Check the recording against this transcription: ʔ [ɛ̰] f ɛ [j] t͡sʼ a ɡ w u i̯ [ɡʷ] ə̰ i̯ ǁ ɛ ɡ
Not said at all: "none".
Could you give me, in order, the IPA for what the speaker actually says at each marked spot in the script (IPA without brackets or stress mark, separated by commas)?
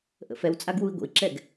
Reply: ə̰, w, ɡʷ